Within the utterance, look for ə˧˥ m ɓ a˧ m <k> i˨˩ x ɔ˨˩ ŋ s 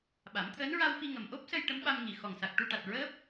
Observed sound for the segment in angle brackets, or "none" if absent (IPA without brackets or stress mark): ŋ